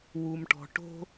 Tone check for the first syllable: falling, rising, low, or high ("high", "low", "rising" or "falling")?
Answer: low